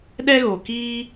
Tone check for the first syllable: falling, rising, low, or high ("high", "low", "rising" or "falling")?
high